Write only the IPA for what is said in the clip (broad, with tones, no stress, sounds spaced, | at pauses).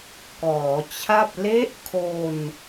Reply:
k ɔː˩˦ t͡ɕʰ a˥˩ p̚ l e˦˥ ʔ kʰ o˧ n